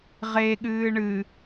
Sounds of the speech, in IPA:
ʁ e ɠ ɨː ɳ ɨ

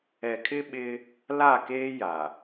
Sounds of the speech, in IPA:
ɛ˨ kʰ ɪ˦ ɓ ɪ˦ | l a˦˨ k eː˦ j a˨

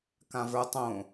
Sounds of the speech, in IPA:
k ã v ə˞ tˤ õ

